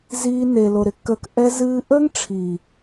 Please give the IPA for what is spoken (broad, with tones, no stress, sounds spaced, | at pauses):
z iː˧ n e˨ l o˨ ɾ ɪ˦ kː əː˧ k ʔ ɛ˧ z ɨː˧ ʔ əː˦ ŋ ʈ͡ʂʰ iː˨